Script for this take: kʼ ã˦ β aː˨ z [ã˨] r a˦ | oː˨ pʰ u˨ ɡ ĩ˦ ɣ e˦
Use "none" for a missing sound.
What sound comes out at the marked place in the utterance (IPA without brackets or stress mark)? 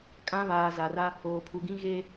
a˨